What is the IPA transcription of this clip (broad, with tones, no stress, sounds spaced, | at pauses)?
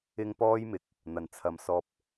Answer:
ɪ˥ ŋ p ɔː˥ j m ɪ˨˥ k̚ | n̪ ɐ˨˩ n t͡sʰ ɐ˨ m s ɔː˧ p̚